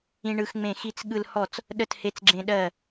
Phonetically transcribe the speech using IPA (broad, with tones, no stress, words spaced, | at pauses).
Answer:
ĩ˦ɳɯ˦xŋ͡mẽ˥˩ xi˦t͡s ɠɯ˦lhɔ˥˩t͡s | ɗə˥˩the˦t͡sɡ͡ǁẽ˦ɗɜ˥˩